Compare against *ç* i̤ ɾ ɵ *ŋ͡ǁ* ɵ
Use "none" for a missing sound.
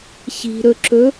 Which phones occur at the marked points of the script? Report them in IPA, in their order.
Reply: ç, ǁ

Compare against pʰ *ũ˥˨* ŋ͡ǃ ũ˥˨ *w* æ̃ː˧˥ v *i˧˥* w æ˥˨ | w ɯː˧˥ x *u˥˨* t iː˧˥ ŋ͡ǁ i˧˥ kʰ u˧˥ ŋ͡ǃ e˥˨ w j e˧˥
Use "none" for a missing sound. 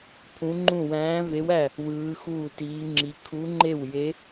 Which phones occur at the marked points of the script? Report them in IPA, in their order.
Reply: ũ˧˥, w, e˧˥, uː˥˨

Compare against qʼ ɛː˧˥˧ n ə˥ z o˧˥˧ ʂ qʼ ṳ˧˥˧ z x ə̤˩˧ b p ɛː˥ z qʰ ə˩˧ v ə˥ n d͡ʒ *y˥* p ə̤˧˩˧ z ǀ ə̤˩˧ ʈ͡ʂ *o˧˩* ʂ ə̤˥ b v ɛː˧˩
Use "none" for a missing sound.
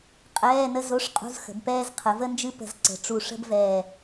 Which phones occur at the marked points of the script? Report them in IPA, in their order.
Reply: ɨ˥, u˧˩

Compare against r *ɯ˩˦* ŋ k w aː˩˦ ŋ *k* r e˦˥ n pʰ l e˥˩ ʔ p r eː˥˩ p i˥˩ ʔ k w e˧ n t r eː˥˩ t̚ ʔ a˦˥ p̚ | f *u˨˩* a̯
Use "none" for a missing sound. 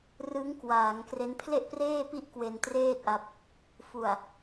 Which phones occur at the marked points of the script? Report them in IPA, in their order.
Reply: ɯ˦˥, k, u˨˩

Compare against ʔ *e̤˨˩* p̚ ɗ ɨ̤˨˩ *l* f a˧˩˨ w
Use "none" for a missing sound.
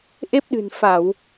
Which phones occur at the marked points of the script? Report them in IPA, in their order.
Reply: e˦˥, n

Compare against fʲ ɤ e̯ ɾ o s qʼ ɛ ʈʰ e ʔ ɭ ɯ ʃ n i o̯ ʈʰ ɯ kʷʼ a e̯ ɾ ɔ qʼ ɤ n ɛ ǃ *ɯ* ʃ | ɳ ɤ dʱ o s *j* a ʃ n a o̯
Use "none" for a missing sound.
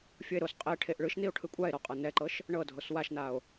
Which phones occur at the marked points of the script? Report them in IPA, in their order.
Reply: ɤ, w

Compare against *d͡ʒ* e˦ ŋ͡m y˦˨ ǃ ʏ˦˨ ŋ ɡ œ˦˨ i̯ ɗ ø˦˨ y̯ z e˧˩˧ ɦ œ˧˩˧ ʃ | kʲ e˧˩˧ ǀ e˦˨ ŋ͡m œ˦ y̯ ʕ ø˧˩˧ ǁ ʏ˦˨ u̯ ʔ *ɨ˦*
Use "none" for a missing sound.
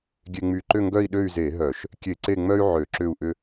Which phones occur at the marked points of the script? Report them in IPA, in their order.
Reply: ɡʲ, ʏ˦

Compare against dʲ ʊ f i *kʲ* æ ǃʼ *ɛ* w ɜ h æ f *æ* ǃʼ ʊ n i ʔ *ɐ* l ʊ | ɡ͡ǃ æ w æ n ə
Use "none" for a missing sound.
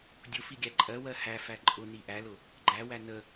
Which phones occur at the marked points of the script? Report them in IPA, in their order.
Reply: ɡʲ, ɜ, æ, æ

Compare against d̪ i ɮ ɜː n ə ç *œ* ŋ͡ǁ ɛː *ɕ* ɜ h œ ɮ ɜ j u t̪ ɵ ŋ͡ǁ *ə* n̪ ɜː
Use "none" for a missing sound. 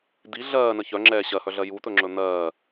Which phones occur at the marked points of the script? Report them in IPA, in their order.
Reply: œ, ɕ, ɵ

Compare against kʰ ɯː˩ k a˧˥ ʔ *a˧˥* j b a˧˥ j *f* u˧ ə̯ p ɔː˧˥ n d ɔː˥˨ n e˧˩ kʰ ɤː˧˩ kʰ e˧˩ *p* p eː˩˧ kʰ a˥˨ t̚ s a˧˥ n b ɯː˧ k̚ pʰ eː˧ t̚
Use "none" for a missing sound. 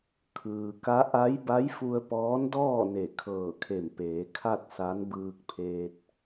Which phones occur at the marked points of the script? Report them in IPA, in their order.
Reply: a˧˥, f, m

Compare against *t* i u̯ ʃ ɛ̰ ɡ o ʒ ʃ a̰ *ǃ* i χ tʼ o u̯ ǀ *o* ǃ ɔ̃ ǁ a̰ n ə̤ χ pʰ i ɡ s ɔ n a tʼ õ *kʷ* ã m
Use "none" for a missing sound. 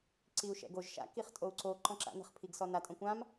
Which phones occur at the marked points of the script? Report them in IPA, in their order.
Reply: ǀ, k, o, kʷ

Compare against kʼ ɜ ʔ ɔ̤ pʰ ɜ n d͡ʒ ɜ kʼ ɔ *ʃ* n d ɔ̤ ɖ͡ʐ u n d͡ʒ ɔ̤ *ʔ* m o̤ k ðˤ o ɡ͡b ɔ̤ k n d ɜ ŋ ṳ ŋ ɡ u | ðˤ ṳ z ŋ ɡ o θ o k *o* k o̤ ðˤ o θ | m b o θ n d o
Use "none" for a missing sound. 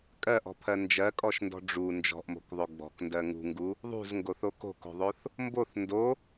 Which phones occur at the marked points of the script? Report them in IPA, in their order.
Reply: ʃ, ʔ, o̤

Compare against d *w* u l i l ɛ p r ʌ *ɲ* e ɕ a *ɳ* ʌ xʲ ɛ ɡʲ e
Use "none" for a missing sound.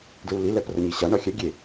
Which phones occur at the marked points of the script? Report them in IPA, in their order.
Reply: ɹ, ɲ, ɳ

